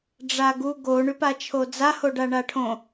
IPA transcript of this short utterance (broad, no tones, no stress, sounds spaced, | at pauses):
ɖ͡ʐ a ɡ u ɡ o ɳ y p a t͡ʃʰ o d͡z a h o ɖ a ɳ a ʈʰ õ